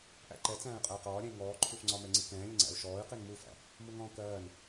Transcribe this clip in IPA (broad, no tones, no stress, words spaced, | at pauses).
ʔæ̰ǃɛ t͡sæ̃ːy̯qʼəy̯qɒː ɾʲɛ̃i̯ŋɔː ǃʰufŋ͡ǀɒmɛŋ͡ǀi kɛ̃ːlʲəŋ͡ǀæ̰u̯ ʃɔːy̯ qinmufæ̰ | muŋɔ̃ːkɜːn